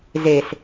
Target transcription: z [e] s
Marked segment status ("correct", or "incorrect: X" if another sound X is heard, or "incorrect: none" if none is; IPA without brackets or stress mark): correct